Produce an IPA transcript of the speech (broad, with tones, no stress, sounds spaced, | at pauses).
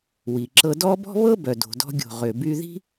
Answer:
w i˩ ǁ ɤ˧ d ɔ˥ b ɔ̤˥ β ɤ˥ b œ˩ d o̤˩ d ɔ̤˧ ɡʲ o̤˩ ʁ ʏ˩ b y˧ ð i̤˥